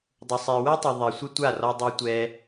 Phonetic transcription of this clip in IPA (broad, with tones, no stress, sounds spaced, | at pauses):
dˤ ʊ˨ sˤ e˨ w ɛ˦ tˤ ʊ˨ ðˤ ɛ˨ sʷ ɪ˦ tʷ a˦˨ r ɔ˧ dˤ e˧ tʷ ɛ˧